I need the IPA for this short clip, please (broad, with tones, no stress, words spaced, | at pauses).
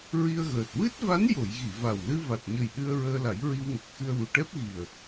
ɹi˧ə̯ɣəː˨˩t̚ wɨ˦˥t̚va˧˥njo˨˩˨j ɣi˨˩˨va˨˩wlɨ˧ va˨˩t̚ɲə˨˩j ɗɨ˧ə̯ ɹəː˧la˨˩˦j ɹi˧wŋə˨˩k̚xɨ˧ə̯wu˨˩ ʈɛ˦˥p̚ɣi˨˩ə̯